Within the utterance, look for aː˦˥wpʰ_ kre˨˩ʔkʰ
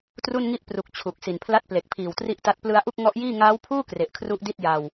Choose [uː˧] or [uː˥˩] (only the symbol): uː˥˩